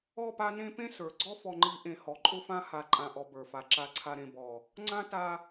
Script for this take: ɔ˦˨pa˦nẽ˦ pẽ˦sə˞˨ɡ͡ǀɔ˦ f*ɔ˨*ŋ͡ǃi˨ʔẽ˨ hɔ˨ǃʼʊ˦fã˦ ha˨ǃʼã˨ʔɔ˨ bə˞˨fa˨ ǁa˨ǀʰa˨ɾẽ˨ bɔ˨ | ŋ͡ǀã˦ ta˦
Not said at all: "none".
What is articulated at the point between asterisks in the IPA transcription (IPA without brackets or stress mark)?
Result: ɔ˨